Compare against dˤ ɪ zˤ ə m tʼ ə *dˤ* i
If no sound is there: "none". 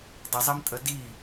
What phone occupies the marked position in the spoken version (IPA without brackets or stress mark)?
d